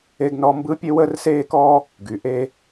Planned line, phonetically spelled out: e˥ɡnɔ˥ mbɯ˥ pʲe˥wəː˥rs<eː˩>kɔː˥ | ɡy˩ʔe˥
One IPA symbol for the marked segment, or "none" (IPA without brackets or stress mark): eː˥